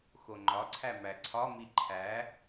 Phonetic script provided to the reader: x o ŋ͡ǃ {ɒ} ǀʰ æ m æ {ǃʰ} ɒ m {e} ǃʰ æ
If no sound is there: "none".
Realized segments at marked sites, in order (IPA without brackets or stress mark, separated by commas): ɒ, ǀʰ, i